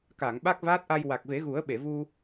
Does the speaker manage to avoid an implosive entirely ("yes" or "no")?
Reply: no